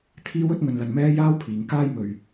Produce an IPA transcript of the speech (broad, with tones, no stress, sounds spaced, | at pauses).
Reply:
t̪ʰ iː˥ w ɵ˥ t̚ ŋ ɵ˧ n l ɐ˧ n m ɛː˥ j aː˥ w pʰ iː˨ ŋ k aː˥ j m ɵ˨ ɥ